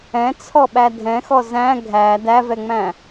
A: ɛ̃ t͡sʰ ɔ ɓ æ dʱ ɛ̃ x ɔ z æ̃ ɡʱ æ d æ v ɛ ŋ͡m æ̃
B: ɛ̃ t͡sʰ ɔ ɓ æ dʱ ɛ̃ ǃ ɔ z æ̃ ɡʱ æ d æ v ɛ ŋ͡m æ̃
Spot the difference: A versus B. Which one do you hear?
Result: A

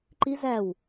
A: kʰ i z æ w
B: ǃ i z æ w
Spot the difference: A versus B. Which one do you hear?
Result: B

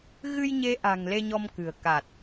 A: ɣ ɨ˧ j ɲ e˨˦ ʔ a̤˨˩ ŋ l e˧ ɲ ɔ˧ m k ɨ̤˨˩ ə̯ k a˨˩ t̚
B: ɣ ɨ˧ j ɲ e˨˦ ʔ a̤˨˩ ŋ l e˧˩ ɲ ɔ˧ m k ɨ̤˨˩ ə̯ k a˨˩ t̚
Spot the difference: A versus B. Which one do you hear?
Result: A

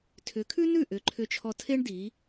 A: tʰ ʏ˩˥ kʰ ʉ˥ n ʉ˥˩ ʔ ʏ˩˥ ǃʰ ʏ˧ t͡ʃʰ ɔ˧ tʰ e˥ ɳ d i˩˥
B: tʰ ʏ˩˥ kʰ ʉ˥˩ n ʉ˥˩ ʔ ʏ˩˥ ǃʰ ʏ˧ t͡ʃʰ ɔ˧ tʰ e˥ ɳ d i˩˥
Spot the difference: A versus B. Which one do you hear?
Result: A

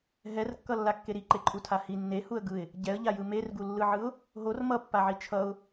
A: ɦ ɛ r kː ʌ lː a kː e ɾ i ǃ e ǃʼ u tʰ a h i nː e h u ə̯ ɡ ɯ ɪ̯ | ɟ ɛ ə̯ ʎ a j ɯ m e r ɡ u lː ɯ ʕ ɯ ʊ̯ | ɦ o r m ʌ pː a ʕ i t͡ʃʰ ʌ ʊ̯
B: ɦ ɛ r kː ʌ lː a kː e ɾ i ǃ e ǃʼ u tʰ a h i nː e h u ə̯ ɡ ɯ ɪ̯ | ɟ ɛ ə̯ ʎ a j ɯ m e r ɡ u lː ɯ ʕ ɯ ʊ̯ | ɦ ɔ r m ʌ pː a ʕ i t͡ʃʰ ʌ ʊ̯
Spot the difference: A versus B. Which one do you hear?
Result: A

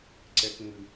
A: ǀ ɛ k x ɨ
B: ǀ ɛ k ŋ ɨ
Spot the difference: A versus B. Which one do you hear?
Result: B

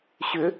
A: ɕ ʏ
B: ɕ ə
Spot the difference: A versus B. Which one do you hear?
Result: A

